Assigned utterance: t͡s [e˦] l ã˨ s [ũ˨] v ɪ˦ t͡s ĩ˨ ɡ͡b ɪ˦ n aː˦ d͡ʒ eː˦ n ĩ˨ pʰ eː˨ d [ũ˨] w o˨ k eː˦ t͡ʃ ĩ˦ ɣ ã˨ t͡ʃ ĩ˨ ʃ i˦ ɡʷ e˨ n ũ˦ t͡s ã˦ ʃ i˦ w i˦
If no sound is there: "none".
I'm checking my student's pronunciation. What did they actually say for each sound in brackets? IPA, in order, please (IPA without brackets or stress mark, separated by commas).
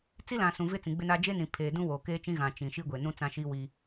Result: i˦, ũ˨, ũ˦